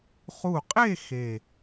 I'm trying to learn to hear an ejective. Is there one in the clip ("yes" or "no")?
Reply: yes